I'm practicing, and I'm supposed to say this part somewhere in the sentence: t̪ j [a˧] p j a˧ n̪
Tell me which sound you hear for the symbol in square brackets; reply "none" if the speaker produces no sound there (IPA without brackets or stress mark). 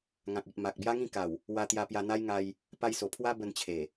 a˧